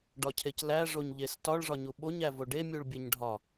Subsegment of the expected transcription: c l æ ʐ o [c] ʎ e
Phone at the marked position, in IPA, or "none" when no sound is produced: ɲ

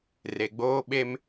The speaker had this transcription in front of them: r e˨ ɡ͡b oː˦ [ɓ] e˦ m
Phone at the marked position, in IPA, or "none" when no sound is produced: ɓ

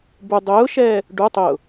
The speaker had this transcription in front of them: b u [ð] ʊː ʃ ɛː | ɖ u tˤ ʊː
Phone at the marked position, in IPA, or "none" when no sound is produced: dˤ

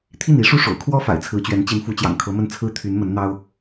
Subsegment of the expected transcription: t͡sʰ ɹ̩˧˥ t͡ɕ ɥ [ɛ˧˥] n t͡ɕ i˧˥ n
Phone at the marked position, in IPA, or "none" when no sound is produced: ɛ˧˥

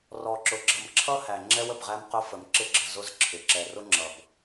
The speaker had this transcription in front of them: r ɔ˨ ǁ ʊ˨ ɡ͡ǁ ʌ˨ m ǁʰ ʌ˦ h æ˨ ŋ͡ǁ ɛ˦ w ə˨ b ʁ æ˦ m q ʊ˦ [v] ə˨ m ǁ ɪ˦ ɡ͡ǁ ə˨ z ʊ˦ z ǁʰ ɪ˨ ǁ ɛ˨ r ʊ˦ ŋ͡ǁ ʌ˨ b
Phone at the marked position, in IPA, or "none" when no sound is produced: f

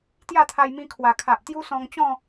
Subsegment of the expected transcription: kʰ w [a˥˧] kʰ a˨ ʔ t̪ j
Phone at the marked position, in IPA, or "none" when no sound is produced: a˨˩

